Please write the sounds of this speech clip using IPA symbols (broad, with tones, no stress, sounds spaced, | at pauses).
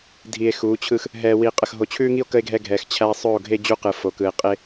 dʱ i˨ e̯ x uː˨˦ t͡ɕʰ ɯ˦ x | ɦ ɛː˨ w i˨ qʼ ə˨ x ɦ o˨ t͡ɕʰ ʉː˦ ŋ i˦ o̯ k ə˦ e̯ ɡʱ ɛ˦ ɡʱ ɛː˨ x t͡ɕʰ æ˦ sˤ ɵː˦˨ o̯ ɡʱ e˦ d͡ʑ u˦ q ɯ˨ f o˨ k ɯ˨ e̯ qʼ e˦